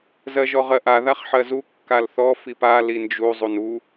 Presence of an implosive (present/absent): absent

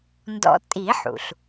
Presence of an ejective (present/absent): present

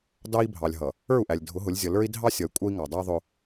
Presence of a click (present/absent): absent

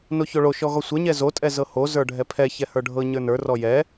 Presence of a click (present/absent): absent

